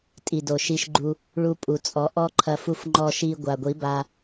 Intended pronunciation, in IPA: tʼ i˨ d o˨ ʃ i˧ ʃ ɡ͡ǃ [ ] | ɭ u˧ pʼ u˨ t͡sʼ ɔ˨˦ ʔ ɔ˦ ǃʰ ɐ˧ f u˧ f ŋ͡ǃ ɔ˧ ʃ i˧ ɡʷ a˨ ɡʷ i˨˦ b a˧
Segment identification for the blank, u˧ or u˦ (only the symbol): u˧